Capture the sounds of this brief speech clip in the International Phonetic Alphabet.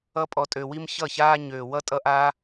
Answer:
ʌ˦ pʼ ɔ˧ tʼ ø˧ w i˦ m ç ʌ˦˨ ç aː˦ ɲ øː˨ w ʌ˦ tʼ ʌ˦ ʔ aː˦

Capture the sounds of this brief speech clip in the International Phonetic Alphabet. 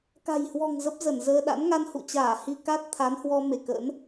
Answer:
k a̤˨˩ j h w ɔ̤˨˩ ŋ z ə˦˥ p̚ z ə˧˩ n z əː˧ ɗ a̰˧˥ n ŋ a˧ n h ṵ˧˨ t͡ɕ aː˧˩ h i˧ k a˦˥ t̚ t̪ʰ a˨˦ n h w ɔ˧ m e˧˩ k ə̰˧˥ n

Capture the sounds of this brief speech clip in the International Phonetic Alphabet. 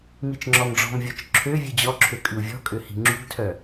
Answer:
m i t͡ʃ ŋ͡ǁ ɔ m ɖ͡ʐ ɔ̤ m vʲ ɔ t͡ʃ ǁʰ ø vʲ ʉ d͡ʑ ɔ ǁʰ ø kʼ ʉ u̯ vʲ ɔ̤ kʼ ø h i̤ ŋ͡ǁ ṳ ɡ tʰ œ

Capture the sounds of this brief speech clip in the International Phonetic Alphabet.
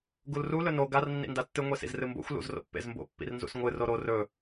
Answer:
ɡ u l r u l ɵ n o ɡ a r nː ḭ n d a tː ɨ ŋʷ e s ḭ z r ɨ m b o̰ xʷ l ṵ z r o̰ pː ḛ z m b o̰ pː ḭ r n z ṵ s ŋʷ ɨ r o ɾ o r ɵ

